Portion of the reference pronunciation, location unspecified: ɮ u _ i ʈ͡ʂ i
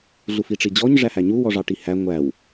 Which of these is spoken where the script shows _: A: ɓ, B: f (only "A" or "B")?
B